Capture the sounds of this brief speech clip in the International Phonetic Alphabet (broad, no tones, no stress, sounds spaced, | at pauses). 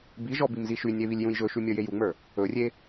b i ʒ ɔ b i m z i ʃ y nʲ e β i lʲ j ũ j ʒ ɵ ʃ y mʲ ə˞ j e j u ŋ͡m ə˞ | ɵ rʲ e